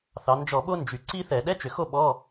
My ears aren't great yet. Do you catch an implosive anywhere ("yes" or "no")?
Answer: yes